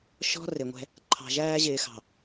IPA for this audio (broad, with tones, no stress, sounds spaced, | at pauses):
ʃ ɔ̤˦ r ɪ˨ ŋʷ ɛ̤˦ | ǃʰ ɑ̤˨ ʒ æː˦ ʑ ɪː˨ x ɑ̤˨